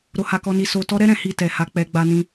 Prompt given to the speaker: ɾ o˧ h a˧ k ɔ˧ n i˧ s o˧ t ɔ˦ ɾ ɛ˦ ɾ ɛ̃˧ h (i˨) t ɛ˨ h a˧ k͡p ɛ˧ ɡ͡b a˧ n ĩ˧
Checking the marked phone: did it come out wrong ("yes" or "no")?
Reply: yes